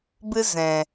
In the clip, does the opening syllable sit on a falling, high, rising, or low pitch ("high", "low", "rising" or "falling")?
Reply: high